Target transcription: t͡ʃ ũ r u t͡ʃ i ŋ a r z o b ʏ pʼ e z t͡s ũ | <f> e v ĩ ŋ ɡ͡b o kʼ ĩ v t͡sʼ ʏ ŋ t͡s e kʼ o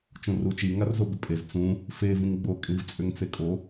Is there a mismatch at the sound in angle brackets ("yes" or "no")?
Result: no